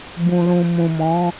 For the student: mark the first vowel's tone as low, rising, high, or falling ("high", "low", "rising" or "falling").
low